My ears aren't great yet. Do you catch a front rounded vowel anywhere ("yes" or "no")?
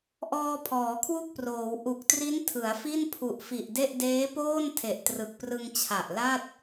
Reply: no